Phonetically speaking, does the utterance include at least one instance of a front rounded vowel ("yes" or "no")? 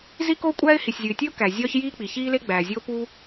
no